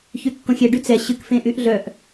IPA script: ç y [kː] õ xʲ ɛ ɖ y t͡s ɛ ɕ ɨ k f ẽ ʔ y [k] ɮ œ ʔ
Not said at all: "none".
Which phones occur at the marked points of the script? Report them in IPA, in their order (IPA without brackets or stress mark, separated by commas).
kː, ʔ